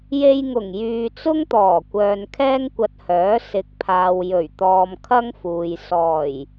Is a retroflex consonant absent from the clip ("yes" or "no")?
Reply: yes